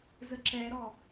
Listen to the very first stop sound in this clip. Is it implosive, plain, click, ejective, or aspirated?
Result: click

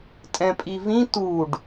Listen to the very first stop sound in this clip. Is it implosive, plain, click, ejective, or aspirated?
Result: ejective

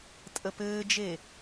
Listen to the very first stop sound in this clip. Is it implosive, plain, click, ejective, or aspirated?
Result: ejective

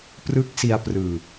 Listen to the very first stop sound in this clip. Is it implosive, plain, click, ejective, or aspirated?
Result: plain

